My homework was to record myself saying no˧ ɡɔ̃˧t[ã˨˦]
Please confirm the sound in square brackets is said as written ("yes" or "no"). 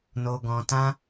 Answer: no